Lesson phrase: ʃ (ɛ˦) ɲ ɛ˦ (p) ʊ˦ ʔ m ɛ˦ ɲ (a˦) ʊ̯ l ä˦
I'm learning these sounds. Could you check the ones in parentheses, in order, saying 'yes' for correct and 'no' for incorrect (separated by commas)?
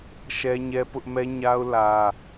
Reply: yes, yes, yes